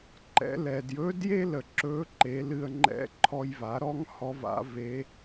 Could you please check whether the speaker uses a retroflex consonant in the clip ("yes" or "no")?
no